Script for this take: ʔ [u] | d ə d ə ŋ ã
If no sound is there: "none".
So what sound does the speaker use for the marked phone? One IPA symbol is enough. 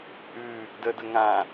ʉ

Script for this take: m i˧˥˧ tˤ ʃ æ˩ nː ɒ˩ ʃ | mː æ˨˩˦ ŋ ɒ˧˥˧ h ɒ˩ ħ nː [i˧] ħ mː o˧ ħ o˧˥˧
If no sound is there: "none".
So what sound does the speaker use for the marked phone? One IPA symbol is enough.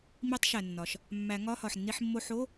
i˧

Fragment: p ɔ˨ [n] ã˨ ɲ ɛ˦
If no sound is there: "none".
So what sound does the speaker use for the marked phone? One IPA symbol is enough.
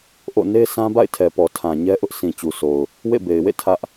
tʰ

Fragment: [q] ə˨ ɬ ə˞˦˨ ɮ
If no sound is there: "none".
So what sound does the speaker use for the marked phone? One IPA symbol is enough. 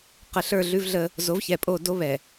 q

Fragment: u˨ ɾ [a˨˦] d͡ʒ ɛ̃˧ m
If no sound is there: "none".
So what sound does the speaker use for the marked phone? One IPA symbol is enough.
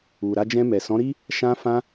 a˧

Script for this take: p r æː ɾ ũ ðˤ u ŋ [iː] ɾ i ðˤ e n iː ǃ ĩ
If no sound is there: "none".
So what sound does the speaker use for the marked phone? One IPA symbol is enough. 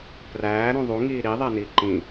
iː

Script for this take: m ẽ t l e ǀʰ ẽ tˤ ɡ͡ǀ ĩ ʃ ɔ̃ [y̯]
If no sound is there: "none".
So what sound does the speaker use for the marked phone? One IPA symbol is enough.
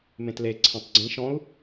u̯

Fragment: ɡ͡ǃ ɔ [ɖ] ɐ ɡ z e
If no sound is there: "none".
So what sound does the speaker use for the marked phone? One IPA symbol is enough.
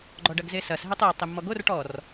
ɖ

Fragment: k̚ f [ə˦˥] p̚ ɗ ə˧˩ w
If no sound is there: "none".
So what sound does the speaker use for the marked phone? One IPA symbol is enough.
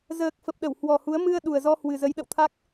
ə˨˩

